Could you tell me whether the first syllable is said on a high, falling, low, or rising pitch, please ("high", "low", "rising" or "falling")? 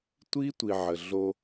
high